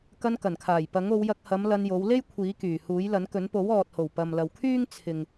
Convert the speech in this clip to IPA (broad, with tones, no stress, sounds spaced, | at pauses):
k ɐ˧ n k ɐ˨˩ n kʰ aː˨˩ j p ɐ˨˥ ŋ o˨˧ w j ɐ˧ k̚ h ɐ˨˧ m l ɐ˧ n j o˨˧ w l e˥ j kʷʰ iː˨˥ k yː˨˩ h uː˨˥ j l ɐ˨˥ n k ɵ˨˥ n p o˨˥ w ɔː˨ t̚ h o˨˩ w p ɐ˨ m l ɐ˨ w kʰ yː˥ ŋ t͡sʰ ɪ˨ ŋ